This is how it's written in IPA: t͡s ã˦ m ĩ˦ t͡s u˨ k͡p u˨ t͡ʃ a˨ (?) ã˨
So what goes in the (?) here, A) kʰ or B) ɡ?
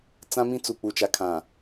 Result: A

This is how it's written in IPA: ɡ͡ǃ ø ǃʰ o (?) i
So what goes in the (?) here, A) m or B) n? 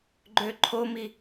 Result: A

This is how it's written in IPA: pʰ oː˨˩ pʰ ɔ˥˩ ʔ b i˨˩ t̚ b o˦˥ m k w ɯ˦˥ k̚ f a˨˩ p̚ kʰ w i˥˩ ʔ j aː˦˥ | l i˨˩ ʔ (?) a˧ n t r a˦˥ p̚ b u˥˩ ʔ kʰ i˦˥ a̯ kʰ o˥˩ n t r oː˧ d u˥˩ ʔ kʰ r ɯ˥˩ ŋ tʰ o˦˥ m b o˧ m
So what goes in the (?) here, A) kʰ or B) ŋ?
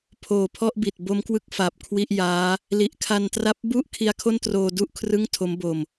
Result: A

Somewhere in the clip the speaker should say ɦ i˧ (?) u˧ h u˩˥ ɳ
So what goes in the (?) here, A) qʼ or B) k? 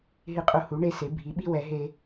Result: A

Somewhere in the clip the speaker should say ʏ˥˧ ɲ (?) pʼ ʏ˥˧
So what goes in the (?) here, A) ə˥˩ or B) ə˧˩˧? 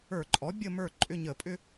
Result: B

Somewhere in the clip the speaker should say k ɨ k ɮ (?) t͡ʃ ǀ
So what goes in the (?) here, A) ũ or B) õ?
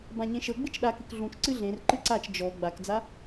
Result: A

